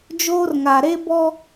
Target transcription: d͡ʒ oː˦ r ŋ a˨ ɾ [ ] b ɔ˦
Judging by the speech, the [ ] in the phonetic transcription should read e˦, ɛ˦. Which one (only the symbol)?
e˦